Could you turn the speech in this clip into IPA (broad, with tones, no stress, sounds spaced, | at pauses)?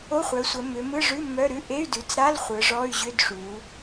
o˧˥˧ χʷ œ˩˧ sʷ ə˩˧ m ʏ˩˧ m ɯ˧˥˧ ʐ ʉ˧˥˧ m œ˧˥˧ ɾ ʉ˧˥˧ ʔ e˧˥˧ y̯ d ʉ˩˧ t͡s ɾ a˧˥˧ l χʷ ɯ˩˧ ʐ ɔ˧˥˧ y̯ ʑ ʏ˧˥˧ d ʂ u˩˧